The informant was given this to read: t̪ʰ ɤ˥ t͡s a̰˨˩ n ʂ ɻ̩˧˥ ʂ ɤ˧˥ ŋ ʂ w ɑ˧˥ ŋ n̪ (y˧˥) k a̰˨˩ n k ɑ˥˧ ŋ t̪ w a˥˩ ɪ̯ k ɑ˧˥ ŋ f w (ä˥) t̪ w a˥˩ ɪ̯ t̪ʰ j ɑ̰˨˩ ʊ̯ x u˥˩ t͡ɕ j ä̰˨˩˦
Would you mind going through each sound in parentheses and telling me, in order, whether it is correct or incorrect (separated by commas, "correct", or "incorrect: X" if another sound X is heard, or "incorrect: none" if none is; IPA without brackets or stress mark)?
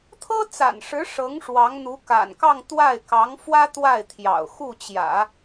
incorrect: u˧˥, correct